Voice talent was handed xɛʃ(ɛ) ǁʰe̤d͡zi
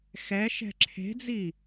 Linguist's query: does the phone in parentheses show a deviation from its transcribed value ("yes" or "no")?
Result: yes